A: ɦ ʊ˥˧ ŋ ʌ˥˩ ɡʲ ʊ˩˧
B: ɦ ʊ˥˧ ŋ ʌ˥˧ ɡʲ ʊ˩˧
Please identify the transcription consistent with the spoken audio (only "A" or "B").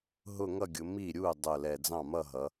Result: B